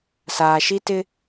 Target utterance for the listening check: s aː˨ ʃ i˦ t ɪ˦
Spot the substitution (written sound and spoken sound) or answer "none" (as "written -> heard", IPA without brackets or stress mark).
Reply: none